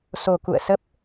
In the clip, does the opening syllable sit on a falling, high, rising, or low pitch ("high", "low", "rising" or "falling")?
low